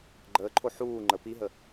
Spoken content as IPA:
ɡ͡ǃ əː ǃʰ o ħ uː ŋ͡ǃ ə p i ɦ ə

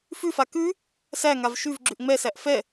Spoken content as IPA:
f ʉ f a k ʉ | s æ ŋ a v ʃ ʉ v ɡ͡ǁ ʉ ʔ ŋ͡m ɛ s æ ʔ f ɛ

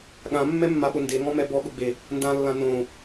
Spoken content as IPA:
ɠ ã mː ɛ mː a ɓ ʊ n d e ŋ ɔ̃ m ɛ b ɔ ɠ ʊ ɡ͡b e | n d ã lː ã n õ

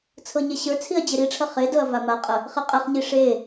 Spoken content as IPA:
t͡sʰ ɤ ɲ ɛ ɕ ə˞ t͡sʰ i ɐ̯ d͡ʑ e ɾ i ʈ͡ʂʰ ɐ χ e d ɤ ɐ̯ v a m a qʼ ə | χ e qʼ ɛ χ ɲ i ʂ e

